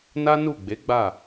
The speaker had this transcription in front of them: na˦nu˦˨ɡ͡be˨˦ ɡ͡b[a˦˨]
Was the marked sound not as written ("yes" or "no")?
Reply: no